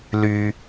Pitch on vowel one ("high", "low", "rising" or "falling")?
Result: low